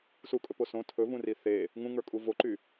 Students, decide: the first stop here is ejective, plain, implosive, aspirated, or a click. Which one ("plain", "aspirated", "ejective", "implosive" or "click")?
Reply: ejective